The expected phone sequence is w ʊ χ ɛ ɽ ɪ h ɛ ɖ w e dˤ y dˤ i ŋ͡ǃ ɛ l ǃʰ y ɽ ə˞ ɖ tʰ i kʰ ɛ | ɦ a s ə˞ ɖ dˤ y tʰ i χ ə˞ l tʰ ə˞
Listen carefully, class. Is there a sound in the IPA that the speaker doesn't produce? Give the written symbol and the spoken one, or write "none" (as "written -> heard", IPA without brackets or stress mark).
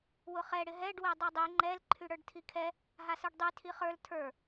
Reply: h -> ɦ